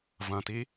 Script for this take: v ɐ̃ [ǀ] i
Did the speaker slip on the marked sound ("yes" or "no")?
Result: yes